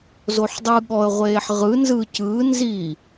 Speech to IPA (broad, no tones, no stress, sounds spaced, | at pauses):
z o ħ dˤ ɯ ɠ ɔ ə̯ ʁʷ eː ħ ʁ ɯ n z ɯ c ɯ n z i